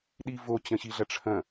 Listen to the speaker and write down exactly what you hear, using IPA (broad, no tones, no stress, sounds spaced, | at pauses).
ɗ i v o t͡ɕ ɐ̃ ɕ i ɮ ɐ ʈ͡ʂʰ ɐ̃